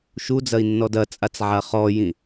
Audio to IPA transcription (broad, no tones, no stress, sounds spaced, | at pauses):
ʃ u d͡z ɐ i̯ nː ɔ d ɐ t͡sʼ a t͡s ʕ a χ ɔ j ĩ